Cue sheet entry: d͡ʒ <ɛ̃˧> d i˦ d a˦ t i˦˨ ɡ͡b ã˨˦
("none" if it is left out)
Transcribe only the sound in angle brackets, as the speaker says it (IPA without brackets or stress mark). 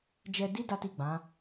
ɛ˧